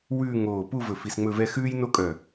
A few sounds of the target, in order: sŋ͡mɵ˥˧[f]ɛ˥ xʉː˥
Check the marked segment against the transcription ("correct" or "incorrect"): incorrect